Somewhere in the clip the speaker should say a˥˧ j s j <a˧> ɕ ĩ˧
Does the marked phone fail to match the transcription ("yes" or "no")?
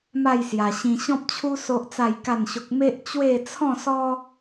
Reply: no